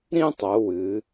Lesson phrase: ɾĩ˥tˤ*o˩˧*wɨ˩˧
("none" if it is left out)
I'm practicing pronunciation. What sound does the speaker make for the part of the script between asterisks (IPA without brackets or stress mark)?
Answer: o˩˧